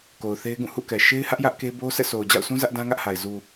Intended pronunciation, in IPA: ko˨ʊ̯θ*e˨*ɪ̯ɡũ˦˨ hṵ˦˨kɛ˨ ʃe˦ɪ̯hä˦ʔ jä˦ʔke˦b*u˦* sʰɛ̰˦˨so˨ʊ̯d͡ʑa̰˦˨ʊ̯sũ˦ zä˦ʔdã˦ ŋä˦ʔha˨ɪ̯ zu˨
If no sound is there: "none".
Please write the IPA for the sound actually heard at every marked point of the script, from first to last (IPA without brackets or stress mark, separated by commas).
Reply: e˦, o˦